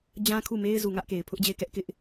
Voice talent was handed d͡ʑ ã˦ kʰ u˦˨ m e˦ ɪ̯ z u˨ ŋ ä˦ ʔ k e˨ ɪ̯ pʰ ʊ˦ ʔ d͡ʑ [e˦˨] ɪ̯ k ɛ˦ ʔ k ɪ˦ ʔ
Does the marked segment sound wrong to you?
no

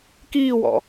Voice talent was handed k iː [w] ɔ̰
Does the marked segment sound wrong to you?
no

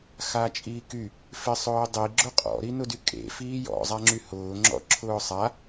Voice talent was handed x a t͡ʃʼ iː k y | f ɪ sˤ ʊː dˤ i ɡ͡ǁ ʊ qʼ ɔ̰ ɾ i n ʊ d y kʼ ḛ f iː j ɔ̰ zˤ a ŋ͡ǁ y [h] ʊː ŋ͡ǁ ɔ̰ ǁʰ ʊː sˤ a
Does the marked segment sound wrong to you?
no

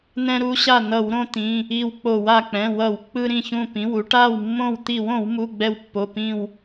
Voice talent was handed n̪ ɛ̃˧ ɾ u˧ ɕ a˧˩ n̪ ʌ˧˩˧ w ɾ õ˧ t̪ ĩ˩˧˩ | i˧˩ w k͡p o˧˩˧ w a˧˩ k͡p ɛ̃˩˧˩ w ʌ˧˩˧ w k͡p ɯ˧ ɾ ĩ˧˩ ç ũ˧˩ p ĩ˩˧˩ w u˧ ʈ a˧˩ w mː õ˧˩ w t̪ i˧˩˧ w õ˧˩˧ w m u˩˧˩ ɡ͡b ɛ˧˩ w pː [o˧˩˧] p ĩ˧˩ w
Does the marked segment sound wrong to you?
yes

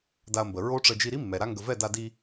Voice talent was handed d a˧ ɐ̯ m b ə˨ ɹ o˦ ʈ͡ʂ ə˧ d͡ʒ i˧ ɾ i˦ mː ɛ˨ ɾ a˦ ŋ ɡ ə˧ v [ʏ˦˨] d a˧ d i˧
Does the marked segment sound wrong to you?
yes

